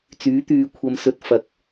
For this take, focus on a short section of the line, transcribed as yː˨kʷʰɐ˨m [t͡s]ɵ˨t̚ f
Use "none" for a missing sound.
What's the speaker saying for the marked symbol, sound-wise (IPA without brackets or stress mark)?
s